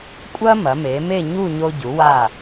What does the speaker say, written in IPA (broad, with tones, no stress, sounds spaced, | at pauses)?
kʷʼ ɐ˥ m ɐ˩˧ m e˩˧ m e˥˧ ɲ u˥˧ ɲ o˧ ɟ u˩˧ w a˧˩